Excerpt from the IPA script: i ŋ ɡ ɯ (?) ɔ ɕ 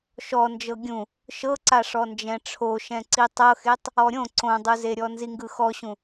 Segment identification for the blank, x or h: x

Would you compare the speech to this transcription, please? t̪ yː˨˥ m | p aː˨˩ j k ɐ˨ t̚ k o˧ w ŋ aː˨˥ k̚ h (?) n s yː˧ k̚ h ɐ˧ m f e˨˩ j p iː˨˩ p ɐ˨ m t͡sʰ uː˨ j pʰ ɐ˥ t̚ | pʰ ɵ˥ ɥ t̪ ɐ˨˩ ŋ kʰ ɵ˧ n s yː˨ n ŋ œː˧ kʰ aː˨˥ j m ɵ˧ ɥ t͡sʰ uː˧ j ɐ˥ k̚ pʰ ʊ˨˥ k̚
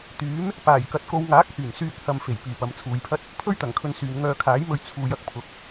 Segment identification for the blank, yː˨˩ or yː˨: yː˨˩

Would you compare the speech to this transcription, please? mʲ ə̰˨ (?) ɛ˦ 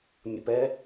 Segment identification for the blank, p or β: p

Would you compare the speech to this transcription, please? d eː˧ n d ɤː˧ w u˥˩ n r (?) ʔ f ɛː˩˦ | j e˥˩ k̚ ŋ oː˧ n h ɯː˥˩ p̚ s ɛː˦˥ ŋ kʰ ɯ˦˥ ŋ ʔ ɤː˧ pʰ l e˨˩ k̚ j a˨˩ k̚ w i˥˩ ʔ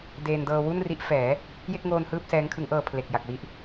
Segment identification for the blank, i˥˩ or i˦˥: i˦˥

